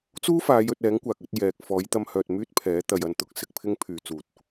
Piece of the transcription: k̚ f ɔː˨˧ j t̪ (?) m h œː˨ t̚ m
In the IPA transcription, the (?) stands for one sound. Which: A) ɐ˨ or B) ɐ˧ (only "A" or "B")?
B